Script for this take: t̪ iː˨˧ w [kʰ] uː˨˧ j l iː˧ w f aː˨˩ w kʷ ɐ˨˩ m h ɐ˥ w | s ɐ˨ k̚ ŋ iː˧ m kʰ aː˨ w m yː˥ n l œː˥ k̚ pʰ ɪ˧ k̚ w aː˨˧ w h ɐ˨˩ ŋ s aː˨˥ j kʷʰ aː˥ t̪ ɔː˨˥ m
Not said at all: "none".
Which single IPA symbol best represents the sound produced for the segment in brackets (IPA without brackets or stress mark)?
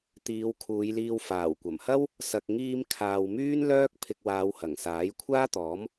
kʰ